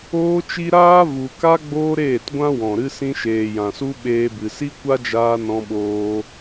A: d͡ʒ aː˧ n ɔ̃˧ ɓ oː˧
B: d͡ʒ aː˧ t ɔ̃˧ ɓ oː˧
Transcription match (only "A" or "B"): A